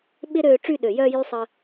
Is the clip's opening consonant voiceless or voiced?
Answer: voiced